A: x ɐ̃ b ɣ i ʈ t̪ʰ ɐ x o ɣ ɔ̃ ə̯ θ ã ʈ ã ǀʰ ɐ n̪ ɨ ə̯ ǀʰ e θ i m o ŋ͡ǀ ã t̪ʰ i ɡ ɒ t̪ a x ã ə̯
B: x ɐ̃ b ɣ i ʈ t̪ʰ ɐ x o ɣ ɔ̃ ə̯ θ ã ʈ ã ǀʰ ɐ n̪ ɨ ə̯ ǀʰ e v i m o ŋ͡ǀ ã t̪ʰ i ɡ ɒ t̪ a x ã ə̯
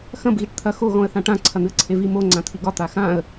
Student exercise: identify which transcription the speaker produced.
B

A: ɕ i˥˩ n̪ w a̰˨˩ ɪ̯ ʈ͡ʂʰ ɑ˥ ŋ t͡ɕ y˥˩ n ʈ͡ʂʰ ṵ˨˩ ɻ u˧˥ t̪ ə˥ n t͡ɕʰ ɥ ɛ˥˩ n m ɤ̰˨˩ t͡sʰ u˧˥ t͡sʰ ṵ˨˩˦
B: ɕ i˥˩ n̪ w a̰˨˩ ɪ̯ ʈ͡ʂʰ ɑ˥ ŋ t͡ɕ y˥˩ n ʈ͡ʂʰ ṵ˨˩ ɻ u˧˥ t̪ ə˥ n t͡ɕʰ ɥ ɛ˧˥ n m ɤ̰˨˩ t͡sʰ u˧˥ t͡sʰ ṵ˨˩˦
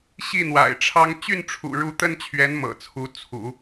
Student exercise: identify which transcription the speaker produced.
B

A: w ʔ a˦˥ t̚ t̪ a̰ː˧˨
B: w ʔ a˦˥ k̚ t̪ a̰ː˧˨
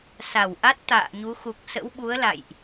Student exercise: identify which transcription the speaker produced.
A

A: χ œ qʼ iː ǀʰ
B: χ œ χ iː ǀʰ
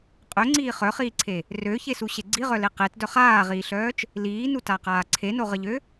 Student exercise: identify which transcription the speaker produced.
B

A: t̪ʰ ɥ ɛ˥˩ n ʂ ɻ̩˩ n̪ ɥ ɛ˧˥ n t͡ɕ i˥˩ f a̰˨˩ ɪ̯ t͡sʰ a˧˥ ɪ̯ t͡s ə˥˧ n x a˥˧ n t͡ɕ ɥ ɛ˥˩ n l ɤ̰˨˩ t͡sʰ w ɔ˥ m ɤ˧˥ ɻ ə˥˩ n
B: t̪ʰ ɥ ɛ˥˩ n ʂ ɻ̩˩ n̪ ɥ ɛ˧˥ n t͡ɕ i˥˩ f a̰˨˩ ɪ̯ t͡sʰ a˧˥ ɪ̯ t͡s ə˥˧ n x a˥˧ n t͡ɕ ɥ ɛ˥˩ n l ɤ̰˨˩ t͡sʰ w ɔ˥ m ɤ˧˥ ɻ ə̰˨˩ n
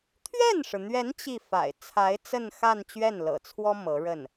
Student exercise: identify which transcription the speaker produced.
A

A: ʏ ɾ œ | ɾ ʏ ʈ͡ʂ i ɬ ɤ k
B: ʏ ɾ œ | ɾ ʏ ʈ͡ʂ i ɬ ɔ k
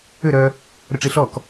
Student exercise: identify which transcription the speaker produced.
B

